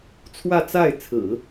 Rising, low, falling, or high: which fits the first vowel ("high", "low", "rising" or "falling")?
falling